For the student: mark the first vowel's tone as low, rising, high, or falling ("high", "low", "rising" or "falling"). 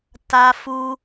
high